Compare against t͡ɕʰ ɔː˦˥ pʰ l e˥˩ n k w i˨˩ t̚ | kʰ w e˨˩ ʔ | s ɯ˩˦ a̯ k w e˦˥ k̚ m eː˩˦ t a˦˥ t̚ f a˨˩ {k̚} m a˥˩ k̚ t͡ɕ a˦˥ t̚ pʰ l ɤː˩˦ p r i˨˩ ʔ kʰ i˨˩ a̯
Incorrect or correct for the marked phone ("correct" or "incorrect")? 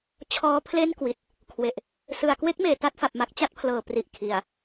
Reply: incorrect